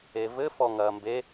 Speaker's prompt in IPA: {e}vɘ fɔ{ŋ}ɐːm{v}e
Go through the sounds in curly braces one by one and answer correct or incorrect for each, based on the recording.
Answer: correct, correct, incorrect

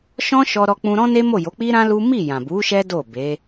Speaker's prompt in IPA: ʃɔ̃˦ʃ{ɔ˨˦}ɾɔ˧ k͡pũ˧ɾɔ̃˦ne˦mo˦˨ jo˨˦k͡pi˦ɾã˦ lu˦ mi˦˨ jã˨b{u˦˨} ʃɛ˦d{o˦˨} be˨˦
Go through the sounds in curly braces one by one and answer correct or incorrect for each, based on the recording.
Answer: incorrect, incorrect, correct

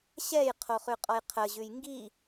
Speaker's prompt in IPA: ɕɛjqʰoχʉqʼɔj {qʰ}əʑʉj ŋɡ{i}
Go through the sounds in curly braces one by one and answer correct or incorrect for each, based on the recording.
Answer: correct, correct

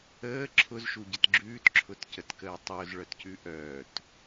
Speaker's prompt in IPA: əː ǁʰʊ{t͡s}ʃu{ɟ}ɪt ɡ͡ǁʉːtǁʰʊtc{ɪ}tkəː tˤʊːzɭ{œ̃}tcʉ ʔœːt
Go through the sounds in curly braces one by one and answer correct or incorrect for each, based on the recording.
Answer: incorrect, correct, incorrect, incorrect

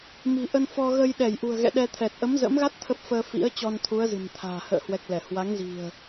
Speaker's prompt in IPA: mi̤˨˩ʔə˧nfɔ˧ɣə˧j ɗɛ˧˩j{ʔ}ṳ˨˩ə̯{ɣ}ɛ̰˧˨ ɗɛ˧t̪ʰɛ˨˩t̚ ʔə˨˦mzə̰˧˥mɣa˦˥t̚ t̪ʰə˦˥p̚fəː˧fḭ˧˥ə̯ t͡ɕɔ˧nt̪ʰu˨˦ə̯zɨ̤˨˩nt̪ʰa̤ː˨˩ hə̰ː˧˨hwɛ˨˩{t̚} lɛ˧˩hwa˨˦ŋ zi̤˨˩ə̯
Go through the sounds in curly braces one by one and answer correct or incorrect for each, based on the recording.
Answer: correct, correct, incorrect

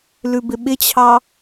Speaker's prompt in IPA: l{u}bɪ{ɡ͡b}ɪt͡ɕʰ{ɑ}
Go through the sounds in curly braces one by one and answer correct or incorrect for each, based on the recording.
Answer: incorrect, incorrect, correct

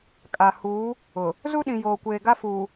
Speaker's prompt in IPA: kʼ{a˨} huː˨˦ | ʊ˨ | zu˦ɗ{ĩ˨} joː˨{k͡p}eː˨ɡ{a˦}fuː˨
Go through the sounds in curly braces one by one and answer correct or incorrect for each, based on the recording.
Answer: correct, correct, incorrect, correct

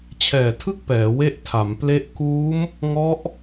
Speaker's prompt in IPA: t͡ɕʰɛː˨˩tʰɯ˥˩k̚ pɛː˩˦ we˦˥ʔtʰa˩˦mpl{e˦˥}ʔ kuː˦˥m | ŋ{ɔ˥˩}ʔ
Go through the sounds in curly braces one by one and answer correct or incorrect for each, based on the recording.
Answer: correct, incorrect

